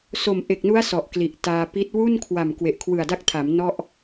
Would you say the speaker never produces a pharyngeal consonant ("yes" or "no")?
yes